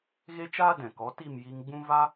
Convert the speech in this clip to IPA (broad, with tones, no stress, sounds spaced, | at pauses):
ɣ e˦ t͡ʃ aː˦ d ɛ̃˨ k ɔ˨˦ t i˦˨ m j i˧ ŋ ɡ͡b ũ˦ v a˦